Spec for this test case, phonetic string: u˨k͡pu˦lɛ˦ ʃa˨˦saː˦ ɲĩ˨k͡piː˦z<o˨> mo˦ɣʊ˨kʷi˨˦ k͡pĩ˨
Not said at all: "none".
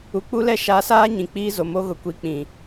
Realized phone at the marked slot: o˨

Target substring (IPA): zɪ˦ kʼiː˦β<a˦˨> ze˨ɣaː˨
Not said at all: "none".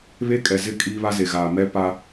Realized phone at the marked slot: a˦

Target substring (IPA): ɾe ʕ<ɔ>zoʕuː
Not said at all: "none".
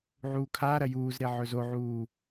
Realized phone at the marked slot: ɵ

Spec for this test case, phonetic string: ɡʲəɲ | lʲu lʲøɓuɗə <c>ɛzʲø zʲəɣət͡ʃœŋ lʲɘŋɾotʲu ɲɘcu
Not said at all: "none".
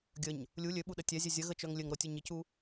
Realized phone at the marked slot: tʲ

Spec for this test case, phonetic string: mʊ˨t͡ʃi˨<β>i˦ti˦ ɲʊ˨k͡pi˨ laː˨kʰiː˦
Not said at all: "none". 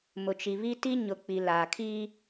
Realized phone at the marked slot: β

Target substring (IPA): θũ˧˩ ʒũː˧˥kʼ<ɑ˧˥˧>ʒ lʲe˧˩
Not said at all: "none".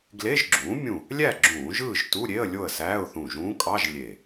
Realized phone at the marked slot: ɑ˧˥˧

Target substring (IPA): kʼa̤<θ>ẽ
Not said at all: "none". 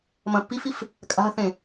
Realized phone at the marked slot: θ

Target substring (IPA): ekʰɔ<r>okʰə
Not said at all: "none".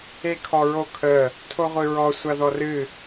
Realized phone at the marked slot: ɹ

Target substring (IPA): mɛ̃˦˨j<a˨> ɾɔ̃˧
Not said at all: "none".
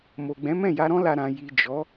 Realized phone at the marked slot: a˧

